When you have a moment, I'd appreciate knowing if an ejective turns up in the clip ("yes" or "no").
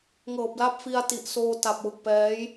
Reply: no